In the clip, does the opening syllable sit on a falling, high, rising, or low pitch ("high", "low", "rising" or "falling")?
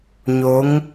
rising